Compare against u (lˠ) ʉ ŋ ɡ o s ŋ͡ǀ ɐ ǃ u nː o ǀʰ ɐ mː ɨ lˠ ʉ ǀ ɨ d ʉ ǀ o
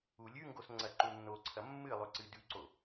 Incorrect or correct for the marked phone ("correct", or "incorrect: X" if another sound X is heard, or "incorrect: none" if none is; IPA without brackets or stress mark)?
incorrect: lʲ